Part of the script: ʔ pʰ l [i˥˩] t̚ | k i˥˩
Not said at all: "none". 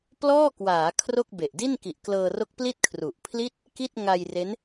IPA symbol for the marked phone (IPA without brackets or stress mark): i˥˩